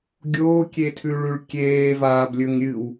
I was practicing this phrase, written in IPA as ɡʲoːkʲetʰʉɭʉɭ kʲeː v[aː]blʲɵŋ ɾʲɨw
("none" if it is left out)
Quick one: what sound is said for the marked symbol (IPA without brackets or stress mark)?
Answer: aː